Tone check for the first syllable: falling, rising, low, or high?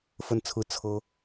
falling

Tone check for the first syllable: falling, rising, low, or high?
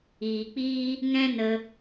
low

